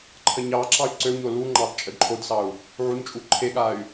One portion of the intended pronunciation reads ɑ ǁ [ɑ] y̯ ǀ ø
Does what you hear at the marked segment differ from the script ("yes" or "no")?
no